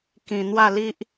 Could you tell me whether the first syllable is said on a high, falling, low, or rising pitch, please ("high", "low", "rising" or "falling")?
low